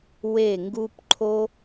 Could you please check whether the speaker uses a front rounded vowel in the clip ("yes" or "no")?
no